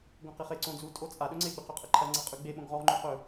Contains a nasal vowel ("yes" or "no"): yes